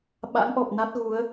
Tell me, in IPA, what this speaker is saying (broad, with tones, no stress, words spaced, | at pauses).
ɓa̰˧˥ŋʔɔ˨˩p̚na˦˥t̚ ɣu˨˦ə̯